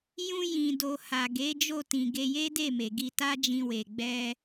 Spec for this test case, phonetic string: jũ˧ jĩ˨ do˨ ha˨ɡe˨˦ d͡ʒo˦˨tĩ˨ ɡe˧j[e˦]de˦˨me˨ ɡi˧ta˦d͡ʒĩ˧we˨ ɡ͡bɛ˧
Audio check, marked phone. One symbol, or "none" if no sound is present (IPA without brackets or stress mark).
e˦